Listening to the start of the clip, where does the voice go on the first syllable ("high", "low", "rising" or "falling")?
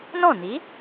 falling